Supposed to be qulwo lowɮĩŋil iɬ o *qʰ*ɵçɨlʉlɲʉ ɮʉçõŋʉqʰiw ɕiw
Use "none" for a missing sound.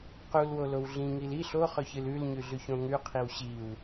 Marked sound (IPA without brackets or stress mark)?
χ